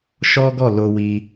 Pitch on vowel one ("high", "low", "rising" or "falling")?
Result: high